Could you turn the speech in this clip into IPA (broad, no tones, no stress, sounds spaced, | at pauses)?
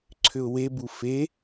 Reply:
ǀʰ ʏ ʊ̯ w e b u f e